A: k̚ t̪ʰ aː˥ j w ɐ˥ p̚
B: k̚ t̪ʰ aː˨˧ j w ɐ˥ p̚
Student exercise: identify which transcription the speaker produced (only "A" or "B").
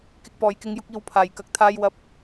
A